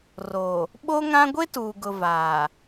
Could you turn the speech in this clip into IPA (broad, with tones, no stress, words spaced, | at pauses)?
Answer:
ro˨ | ɓo˦ŋã˦ ɡʷe˦tuː˨ɡʊ˨ vaː˨